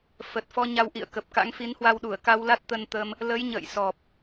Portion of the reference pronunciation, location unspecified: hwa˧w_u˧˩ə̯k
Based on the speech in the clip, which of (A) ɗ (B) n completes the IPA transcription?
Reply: A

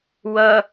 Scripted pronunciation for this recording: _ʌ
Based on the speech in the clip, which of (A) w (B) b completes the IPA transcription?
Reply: A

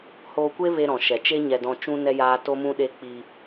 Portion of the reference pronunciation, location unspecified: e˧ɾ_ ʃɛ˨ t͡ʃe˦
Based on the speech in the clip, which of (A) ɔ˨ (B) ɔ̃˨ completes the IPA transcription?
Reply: B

